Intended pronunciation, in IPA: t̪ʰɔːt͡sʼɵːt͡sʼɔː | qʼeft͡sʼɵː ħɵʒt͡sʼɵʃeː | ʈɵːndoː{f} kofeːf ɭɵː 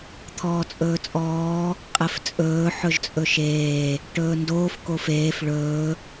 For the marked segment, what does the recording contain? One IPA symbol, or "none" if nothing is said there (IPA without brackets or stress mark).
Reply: f